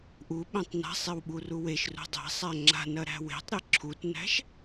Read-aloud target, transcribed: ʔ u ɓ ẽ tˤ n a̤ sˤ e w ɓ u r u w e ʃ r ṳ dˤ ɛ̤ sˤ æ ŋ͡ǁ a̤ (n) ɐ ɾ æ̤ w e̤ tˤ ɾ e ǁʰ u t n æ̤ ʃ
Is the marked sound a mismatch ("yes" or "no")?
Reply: no